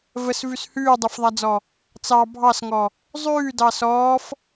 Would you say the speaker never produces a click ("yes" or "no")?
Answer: yes